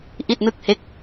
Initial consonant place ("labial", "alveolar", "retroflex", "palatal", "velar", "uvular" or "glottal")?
glottal